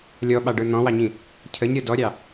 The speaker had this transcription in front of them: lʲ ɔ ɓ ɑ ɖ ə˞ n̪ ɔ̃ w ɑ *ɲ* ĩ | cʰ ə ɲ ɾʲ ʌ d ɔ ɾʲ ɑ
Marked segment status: correct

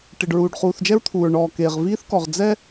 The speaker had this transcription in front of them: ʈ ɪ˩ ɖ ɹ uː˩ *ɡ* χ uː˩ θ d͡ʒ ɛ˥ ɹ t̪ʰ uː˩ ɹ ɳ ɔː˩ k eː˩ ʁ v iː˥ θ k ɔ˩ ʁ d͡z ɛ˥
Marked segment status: incorrect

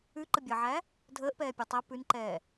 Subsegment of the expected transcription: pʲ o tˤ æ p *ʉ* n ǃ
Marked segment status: correct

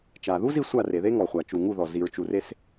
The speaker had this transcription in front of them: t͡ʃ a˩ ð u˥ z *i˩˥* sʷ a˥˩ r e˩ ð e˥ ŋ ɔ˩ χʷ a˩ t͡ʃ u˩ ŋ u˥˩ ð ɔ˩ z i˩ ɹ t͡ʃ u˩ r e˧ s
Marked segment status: incorrect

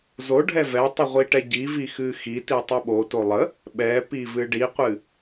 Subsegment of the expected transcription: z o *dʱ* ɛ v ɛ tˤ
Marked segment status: incorrect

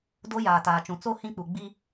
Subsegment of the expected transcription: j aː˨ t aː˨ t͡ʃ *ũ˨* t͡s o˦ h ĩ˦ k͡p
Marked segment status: correct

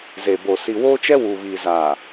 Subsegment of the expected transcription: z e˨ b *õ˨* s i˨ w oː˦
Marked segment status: incorrect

